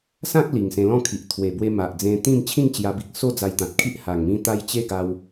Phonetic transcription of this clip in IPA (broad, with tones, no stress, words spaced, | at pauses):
sã˦k̚ li˨˩ŋsẽ˧lɔ̃˥˧kʰi˨ʔ t̪ʰwe˨˩bwe˧ ma˨ʔd͡zẽ˧t̪ĩ˥˧m t͡ɕʰĩ˥˧ŋt͡ɕja˧bi˨k̚so˥˧ d͡za˧jt̪ã˨t̚kʰi˦ʔ ha˨˩ŋmĩ˧t̪a˧j t͡ɕe˦ɡa˧w